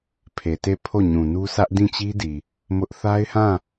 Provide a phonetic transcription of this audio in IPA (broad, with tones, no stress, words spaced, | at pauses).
pʰe˨te˦˨ pʰo˦˨ɲũ˨nu˦ sä˦ʔdĩ˦˨t͡ɕi˦di˨ | mʊ˦ʔ θa˦ɪ̯hã˦˨